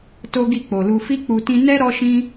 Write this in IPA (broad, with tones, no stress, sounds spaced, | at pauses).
t o˦ ɡ i˦˨ k͡p o˨ l u˧ f i˦ k͡p u˧ t ĩ˧ n ɛ˦ ɾ ɔ˦ ʃ ĩ˦